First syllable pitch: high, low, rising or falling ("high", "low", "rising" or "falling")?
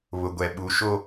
low